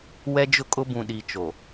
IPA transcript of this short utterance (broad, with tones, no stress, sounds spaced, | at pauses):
w ɛ˦ d͡ʒ ʊ˦ kʼ ʊ˦ b ũ˨ ɗ i˨ t͡ʃ o˨